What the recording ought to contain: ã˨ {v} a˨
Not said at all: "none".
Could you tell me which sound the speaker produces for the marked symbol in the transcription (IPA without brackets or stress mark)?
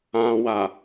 w